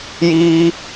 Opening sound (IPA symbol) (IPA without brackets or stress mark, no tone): j